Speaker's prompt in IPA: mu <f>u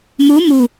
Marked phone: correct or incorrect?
incorrect